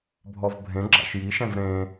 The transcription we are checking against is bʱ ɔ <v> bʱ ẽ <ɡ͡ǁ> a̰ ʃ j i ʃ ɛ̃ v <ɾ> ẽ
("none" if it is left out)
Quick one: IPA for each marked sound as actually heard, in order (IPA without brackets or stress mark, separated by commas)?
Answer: v, ɡ͡ǁ, ɾ